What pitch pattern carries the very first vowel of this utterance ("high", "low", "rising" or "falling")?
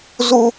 high